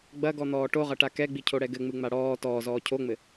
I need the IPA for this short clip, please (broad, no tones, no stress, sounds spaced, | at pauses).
ɡ͡b ɐ ɡ ɔ n̪ ɔː ʈ o ʁ ɐ ʈ a k ɛ ɡ͡b i cʰ o ɽ ɛ ɡ ɘ ŋ͡m ɨ ŋ͡m a ɽ ɔː t ɔː z ɔː cʰ o ŋ͡m ɘ